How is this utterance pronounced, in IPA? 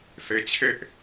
s e˧ t͡ɕʰ e˦ ʔ

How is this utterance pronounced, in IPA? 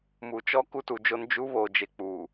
m u˨ t͡ʃ ɔ˦ k u˦ t u˨ d͡ʒ o˦ n d͡ʒ u˦ β o˨ d͡ʒ e˨ k͡p uː˨

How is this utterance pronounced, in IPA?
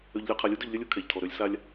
ø˨ ʎ lʲ ø˨ qʰ a˨ lʲ u˦ d ø˨ ʎ lʲ œ˦ lʲ u˦˨ kʰ ɛ˨ ʎ tʰ ɔ˨ ɾ ø˦ lʲ s a˦ lʲ

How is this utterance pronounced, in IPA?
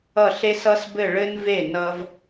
ʌ˧˩ ɬ e˧ s ʌ˧ s b ɘ˧˩ ɭ ɘ˧ n v e˧˩ n ʌ˧ v

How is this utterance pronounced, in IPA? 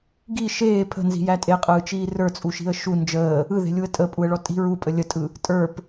ɡ i ʃ eː pʰ ə̤ n z i̤ j æ tʼ e qʼ ɯː t͡ʃ iː r ə˞ t͡sʼ u ʃ i̤ ə̯ ʃ u n d͡ʒ əː | ɯ ð e̤ lʲ u ə̯ tʼ ə pʼ u ə̯ ɭ ɔ tʼ i̤ ɹ u pʼ ə lʲ ə tʼ ɯ | tʼ ə˞ p

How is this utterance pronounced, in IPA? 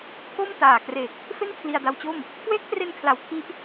k o˥˩ m t aː˨˩ k r e˨˩ k̚ | f e˥˩ n kʰ l i˧ a̯ d a˧ w t͡ɕ o˥˩ m | k w eː˦˥ k̚ t r e˧ n kʰ l a˨˩ w kʰ i˦˥ ʔ

